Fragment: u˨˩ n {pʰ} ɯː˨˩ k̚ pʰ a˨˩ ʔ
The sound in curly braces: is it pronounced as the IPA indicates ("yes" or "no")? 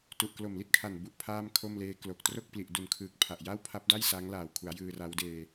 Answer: no